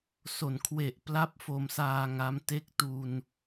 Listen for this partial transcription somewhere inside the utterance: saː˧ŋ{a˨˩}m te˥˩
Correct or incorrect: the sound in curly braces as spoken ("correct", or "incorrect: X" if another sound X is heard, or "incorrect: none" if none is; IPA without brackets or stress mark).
incorrect: a˦˥